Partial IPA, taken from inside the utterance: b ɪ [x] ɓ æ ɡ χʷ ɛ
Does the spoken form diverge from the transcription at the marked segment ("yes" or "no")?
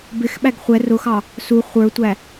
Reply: no